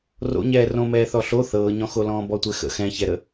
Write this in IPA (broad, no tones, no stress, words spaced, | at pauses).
ro̰ɲɛː rõmɛː θɔɬo θɤːɲɔ̃xolɔ̃ː bɔtʷɛxə̰ xɛ̃çɛɾə